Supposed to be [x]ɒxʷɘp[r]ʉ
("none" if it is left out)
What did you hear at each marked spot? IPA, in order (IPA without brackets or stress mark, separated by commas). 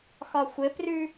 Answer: x, r